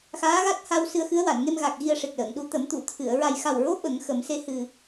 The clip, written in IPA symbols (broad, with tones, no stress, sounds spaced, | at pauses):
x aː˧˥ ɣ a˦˥ t̚ h a˧ w s ɨ˧ ə̯ x ɨ˧˥ ə̯ w a˨˩˨ n ŋ e˧ m ɣ a˨˩ k̚ ɣ i˧ ə̯ ʂ e˨˩ k̚ l əː˨˩˨ ŋ ɗ u˧˥ t̪ ə˨˩˦ m t̪ u˨˩˨ t̪ʰ ɨ˨˩˨ ə̯ ɹ a˨˩ j x a˨˩ w ɹ o˧˥ ɓ ə˨˩˦ ŋ x ə˨˩˦ m s e˧ h ɨ˨˩